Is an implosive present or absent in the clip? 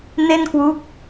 absent